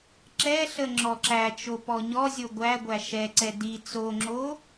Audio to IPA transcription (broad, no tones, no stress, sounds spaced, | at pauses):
ǁ ɛ ɬ ə ŋ͡ǁ ɔ ǁ æ t͡ʃ o p ɔ ɲ ɔ zʲ o ɡʷ æ ɡʷ æ ʃ ɛ ǀ ɛ d i t͡s o ŋ͡ǁ o